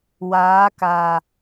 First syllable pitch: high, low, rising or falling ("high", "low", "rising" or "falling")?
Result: rising